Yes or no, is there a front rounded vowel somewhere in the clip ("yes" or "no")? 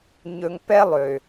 yes